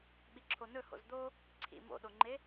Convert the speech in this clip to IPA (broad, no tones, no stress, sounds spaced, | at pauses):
ɓ i ǁʰ o n ɵ h o̰ z d̪ o | ǀʰ ḭ m o̰ ɗ o ŋ͡ǃ e